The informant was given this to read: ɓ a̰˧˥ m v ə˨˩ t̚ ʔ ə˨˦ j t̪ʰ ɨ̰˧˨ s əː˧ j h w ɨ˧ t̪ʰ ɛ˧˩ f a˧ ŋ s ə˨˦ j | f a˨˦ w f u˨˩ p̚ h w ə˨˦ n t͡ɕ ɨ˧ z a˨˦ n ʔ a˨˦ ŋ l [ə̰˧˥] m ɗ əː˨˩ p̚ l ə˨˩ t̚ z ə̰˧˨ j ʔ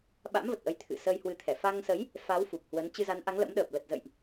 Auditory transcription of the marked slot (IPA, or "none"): ə̰˧˥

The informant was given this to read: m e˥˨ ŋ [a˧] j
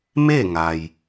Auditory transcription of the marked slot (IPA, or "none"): a˩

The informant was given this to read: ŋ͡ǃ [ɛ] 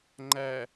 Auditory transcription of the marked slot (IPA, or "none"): æ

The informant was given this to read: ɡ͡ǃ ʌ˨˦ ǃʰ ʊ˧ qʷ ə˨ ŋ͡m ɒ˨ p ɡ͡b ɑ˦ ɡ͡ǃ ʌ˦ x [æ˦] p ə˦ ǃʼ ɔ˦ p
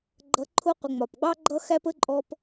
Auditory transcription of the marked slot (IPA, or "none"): æ˦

